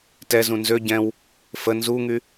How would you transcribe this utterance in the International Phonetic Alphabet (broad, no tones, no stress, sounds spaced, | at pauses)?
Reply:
t ɛ z ũ n z ø ɟ ɛ̃ w | f ə n z u ŋ y